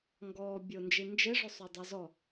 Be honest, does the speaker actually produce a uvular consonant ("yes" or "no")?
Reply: no